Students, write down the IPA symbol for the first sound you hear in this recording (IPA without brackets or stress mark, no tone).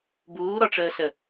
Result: b